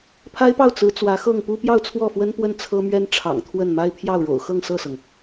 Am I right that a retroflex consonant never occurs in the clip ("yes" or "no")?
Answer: no